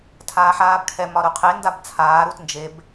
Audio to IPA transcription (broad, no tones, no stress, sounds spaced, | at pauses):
tʰ aː ħ aː b kʰ ɛ m ɒ ɾ u qʰ e n d a b t͡sʰ aː ɾ u t n d͡ʒ e b